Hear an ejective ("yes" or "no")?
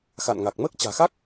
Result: no